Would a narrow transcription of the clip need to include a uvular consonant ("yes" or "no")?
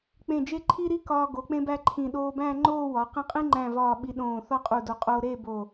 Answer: yes